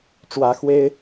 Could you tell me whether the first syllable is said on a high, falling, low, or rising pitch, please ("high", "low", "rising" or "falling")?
rising